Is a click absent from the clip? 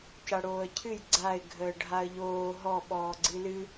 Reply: no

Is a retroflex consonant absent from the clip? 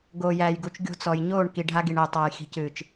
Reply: no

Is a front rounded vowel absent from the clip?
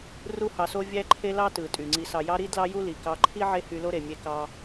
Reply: no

